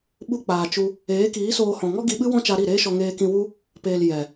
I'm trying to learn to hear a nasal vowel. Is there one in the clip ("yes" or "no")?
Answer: yes